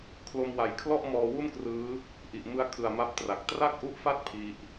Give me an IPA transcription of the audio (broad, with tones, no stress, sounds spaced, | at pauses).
kʰ l o˧ m w a˩˦ j kʰ l ɔ˥˩ ʔ m ɔː˧ w u˥˩ n k r ɯː˦˥ | ʔ i˨˩ ʔ m ɯ˧ a̯ kʰ ɯ˨˩ a̯ m a˦˥ p̚ t r a˨˩ k̚ t r a˥˩ k̚ ʔ u˦˥ ʔ f a˥˩ t̚ pʰ i˦˥ ʔ